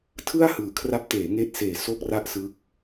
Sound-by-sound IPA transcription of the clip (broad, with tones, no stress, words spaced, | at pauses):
tʰɯ˥˩a̯ hɯː˨˩kʰra˦˥p̚ teː˩˦ŋeː˦˥t̚seː˨˩ so˥˩k̚ra˥˩ʔsɯ˦˥k̚